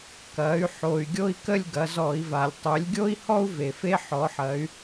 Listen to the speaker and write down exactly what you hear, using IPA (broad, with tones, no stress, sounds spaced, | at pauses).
k ɐ˩˧ y̯ ħ o˩ y̯ ɡʲ o˥ i̯ k ə˥˧ lʲ ɡ ɐ˩˧ z ɔ˧˩˧ i̯ v a˩ lʲ tˤ ø˩˧ lʲ ɡʲ o˥ i̯ h ɔ˥ u̯ v e˩ f e˥ ħ ɔ˨˥ ħ ɐ˨˥ y̯